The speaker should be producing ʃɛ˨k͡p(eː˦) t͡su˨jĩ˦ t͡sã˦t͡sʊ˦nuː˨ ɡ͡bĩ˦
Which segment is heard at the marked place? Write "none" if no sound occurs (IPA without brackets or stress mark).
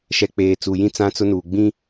eː˨